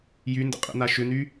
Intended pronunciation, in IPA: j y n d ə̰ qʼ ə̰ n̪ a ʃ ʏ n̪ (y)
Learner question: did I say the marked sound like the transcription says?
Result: yes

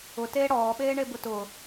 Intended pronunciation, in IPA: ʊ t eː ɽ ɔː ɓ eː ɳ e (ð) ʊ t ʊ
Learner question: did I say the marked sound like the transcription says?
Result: no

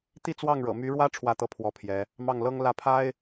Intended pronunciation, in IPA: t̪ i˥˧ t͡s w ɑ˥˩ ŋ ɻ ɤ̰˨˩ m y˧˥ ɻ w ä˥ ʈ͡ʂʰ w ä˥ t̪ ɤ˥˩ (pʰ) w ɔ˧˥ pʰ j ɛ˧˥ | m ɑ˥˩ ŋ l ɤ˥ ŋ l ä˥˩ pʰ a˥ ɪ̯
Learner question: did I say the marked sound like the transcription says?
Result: yes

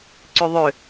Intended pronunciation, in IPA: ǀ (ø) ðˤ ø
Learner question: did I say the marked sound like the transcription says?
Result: no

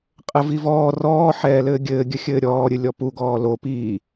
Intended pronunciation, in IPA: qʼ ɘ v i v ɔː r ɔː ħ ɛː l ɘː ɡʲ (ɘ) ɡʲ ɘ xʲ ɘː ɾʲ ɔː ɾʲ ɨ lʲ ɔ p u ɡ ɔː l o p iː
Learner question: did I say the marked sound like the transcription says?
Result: no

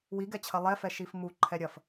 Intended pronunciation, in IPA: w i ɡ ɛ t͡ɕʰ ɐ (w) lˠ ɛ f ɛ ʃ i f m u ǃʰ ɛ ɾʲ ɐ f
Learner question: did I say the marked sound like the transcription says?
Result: no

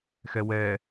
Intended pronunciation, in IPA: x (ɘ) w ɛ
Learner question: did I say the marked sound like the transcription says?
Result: no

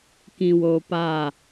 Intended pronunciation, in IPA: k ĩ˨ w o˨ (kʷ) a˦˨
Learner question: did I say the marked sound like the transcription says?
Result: no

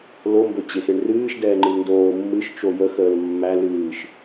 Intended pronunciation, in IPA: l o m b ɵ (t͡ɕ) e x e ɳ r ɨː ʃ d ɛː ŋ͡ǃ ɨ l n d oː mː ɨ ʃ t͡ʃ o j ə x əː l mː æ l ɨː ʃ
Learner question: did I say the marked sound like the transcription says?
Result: yes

